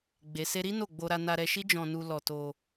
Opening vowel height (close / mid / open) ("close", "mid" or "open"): mid